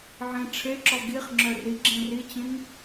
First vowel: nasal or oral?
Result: nasal